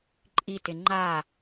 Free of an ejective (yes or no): no